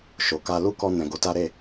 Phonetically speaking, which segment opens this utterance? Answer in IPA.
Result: ʃ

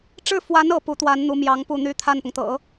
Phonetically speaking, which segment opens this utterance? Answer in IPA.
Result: ʈ͡ʂ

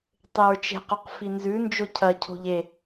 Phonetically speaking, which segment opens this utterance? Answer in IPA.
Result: tˤ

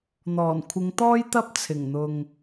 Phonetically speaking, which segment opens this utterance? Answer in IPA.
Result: n̪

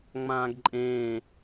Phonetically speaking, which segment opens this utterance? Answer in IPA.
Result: ŋ͡m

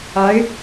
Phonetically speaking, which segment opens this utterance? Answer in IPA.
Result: a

